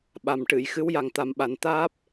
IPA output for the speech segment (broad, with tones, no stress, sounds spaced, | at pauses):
ɓ a˨˩ m ʈ ɨ˨˩˨ j x ɨ˧˥ w j a˨˩ ŋ t̪ a˨˩ m ɓ a˨˩ n t̪ aː˦˥ p̚